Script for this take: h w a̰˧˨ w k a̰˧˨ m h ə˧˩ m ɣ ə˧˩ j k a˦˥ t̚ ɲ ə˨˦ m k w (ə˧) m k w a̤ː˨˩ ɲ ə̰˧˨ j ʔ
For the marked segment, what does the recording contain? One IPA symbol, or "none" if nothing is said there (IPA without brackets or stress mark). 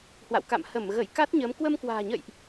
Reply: ə˧